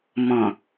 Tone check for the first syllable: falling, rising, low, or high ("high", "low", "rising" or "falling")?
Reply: low